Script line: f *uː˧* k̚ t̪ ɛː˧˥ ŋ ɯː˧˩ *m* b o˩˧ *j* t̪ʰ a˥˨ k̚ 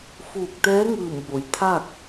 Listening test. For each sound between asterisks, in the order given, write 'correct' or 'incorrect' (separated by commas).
incorrect, correct, correct